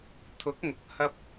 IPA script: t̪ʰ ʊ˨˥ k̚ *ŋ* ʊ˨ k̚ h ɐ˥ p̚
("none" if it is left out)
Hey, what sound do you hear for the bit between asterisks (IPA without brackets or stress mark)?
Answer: ŋ